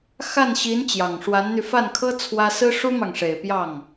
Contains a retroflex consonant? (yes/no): yes